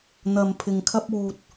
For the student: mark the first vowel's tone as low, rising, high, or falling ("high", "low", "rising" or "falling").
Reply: low